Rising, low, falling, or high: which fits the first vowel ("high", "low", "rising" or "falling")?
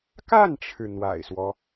falling